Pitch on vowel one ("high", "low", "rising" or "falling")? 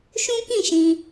high